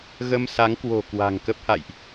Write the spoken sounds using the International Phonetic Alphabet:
ɣə˧msa˨˦ŋkwo̤˨˩ kwa̤˨˩ŋ kə˦˥p̚ha̰˧˨jʔ

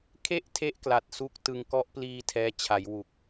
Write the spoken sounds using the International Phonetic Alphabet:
kʰe˥˩ʔtʰe˦˥ʔ kla˨˩t̚su˥˩k̚ tɯ˧ŋ kɔ˦˥ʔpliː˧ tʰɛː˦˥t͡ɕʰa˩˦jwu˨˩k̚

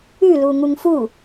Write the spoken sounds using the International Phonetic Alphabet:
ʉlu ŋuŋfu

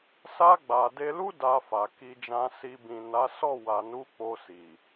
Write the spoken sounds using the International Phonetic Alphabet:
sa˧ɡ͡ba˨ de˧lu˦ da˧fa˨ ki˧d͡ʒã˧si˧ bĩ˨na˨˦ sɔ˦˨wa˨nu˨˦ k͡po˧si˨

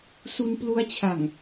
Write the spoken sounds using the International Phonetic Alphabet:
su˧nplu˦˥a̯t͡ɕʰa˨˩ŋ

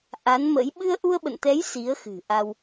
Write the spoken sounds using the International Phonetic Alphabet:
ʔa˨˦nmə̰˧˥j ɓɨ˧ə̯ʔu˧ə̯ɓə̰˧˨nt̪ɛ˨˦j si˨˦ə̯xɨ̤˨˩ʔa˧w

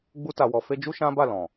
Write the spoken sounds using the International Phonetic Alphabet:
ɡ͡bu˧ta˨wɔ˨fe˧ d͡ʒu˦ʃã˦ba˦˨lɔ̃˨

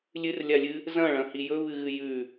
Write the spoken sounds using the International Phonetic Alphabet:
lʲɨrlʲalʲɨ | zɐ̃ɭɐ̃hi jɵβɨɣɨ jʉ

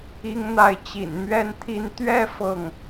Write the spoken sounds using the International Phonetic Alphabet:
i˥ŋn̪a˥˩ɪ̯ t͡ɕḭ˨˩n mɥɛ˥˧nt̪ʰi˥˧n t̪ɥɛ˥˧ fɤ˥˩ŋ

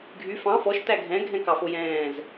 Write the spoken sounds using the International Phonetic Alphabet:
ɡʱy fɑ̃ fɔʃ tæɡʱɛ̃ ɡʱɛ̃kɑfojɛ̃ːz

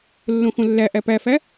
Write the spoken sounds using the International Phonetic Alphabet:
lːõxõlːæʔæ pæfæ

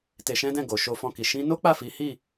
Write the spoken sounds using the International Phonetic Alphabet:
te˧ʃɛ̃˦dɛ̃˦˨ ɡo˨ʃo˧fɔ̃˧ki˨ ʃĩ˧no˦k͡pa˦˨fi˨˦ hi˦˨

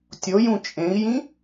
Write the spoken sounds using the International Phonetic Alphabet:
tʲojũ t͡ʃʼẽi̯jĩ

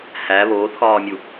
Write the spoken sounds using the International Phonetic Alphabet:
hæ βoːθxɒːmʲu

